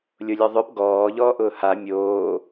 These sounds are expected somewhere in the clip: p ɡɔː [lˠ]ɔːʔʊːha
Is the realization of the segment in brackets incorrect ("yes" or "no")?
yes